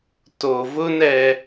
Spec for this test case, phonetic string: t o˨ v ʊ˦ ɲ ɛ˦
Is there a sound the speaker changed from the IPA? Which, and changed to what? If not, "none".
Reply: ɲ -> n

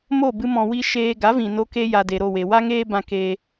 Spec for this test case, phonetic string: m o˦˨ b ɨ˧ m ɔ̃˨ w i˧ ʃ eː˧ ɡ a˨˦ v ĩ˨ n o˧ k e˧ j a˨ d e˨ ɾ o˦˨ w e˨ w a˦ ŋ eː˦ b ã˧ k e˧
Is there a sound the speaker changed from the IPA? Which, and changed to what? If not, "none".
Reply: none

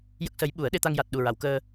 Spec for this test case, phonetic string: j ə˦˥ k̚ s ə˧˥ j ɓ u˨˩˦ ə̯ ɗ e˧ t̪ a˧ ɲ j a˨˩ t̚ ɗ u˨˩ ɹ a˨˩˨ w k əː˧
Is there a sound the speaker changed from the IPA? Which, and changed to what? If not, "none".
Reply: ɲ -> ŋ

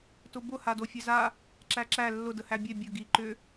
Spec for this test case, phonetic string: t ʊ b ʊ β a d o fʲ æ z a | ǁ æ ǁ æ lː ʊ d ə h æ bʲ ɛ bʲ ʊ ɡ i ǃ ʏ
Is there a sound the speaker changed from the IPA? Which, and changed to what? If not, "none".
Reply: β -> h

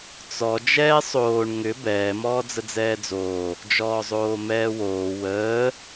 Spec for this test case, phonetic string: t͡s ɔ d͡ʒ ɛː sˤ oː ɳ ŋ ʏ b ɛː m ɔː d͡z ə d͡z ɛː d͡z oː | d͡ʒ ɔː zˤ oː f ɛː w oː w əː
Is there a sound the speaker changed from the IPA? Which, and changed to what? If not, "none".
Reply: f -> m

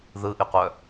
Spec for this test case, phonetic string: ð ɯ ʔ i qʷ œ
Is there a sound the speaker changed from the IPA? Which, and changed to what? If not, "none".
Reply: none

